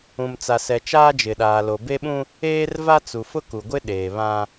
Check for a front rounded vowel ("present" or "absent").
absent